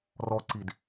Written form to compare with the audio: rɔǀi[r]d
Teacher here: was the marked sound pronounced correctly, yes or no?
no